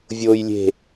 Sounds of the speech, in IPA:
vʲ oː j lʲ e̤

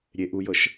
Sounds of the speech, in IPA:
ɾʲ e ʔ u j ɤ ʃ

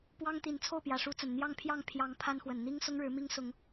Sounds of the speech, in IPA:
p w ɑ˦ ŋ t̪ i˨˦ n t͡sʰ o˥˨ ʊ̯ p j ä˨˩ ʂ u˨˦ t͡s ə˨˩ n n̪ j ɑ˥˨ ŋ pʰ j ɑ˥˨ ŋ pʰ j ɑ˨˦ ŋ pʰ a˦ n x w ə˨˩ n n̪ i˦ ŋ s ʊ˦ ŋ ɻ ɻ̩˨˦ m i˦ ŋ s ʊ˨˦ ŋ

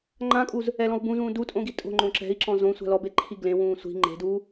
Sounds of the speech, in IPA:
ŋ͡ǃ ã kʼ uː z | ɛ l ɔ̃ u̯ b ũ z ũː d u tʼ õ ɡ i tʼ o̤ ŋ͡ǃ õ ǁ ɛ̤ i̯ ǁ ɔ̃ z õ sʷ a̤ l ɔ b e ǃʰ i ɡ l ẽ w ũː sʷ i̤ ŋ͡ǃ e̤ d uː

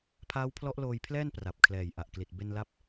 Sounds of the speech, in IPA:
pʰ aː˦˥ w pʰ l ɔ˦˥ ʔ l oː˧ j pʰ l ɛː˥˩ n p r a˨˩ p̚ kʰ l ɛː˨˩ j ʔ a˨˩ ʔ k l i˨˩ t̚ b e˧ n l a˦˥ p̚

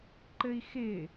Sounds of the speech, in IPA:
ǃ ɘ i̯ x ɪː

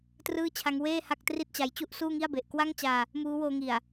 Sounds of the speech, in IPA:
t r ɯː˥˩ t͡ɕʰ a˦˥ ŋ w eː˥˩ h a˥˩ k̚ t r i˥˩ t̚ t͡ɕ a˧ j t͡ɕ u˥˩ ʔ s uː˥˩ ŋ i˥˩ a̯ b e˨˩ ʔ k w a˥˩ ŋ t͡ɕ aː˧ | m uː˦˥ w oː˧ ŋ i˨˩ a̯

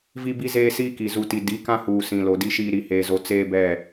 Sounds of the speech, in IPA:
v i˦ b i˦ z eː˦ s iː˦ k i˨ z u˨ t i˨ d i˨˦ k ã˦ h uː˨ s ĩ˨ l o˨ d i˦ ʃ iː˦ ɾ i˨ h eː˨ z o˨ t͡s eː˦ b ɛ˦˨

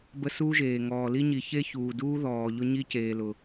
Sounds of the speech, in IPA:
b ə˦ s uː˦ ʒ eː˨ ŋ ɔː˨ l i˦ ɲ i˨ ç e˦ ç uː˨ d uː˦ ð ɔː˨ ʎ ʊ˦ ɲ i˦ c eː˨ l ʊ˨

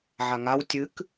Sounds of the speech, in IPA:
ʕ a ŋ a w tʲ ɨ k

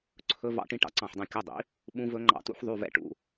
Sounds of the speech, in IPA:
ǀʰ ɵ˦˥ v ɑ̰˦˥ ʈ ĩ˦˥ ʈ ɑ̰˧˥˧ ǀ ɑ̃˥˩ ħ dˤ ĩ˥˩ kʲ ɵ˧˥˧ dˤ ḭ˩˥ | ɓ ũ˦˥ v ɵ˦˥ ŋ͡ǃ ɑ̰˦˥ t ṵ˦˥ ħ ðˤ y˧˥˧ v ɛ̰˦˥ ʈ ṵ˧˥˧

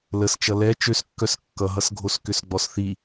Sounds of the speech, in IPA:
l ə s t͡ʃ ʌ l ɛ t͡ʃ ø s kː œ s kː ʌ ɦ ʌ s ɡʱ o s k ʏ s ɡ͡b ɔ s θ i

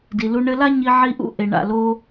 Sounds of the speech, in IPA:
d i˨ l u˧ ɳ ɘ˧ l a˦ ɲ i˧ ʕ i˧ ʔ ṵ˦ ʔ e˨ ɳ a̰˦˨ l o˧

